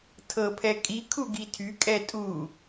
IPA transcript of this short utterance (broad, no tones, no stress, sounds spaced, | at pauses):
tʰ ɤ pʰ ɛ kʼ i kʰ u ɡ i tʰ y kʼ ɛ tʼ u